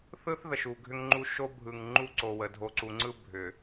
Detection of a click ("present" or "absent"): present